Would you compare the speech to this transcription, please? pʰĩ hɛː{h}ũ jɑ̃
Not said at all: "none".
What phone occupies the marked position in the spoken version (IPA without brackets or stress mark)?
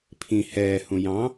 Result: h